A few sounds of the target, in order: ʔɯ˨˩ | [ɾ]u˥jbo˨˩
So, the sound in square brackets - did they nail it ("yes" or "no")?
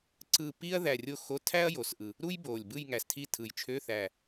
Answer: yes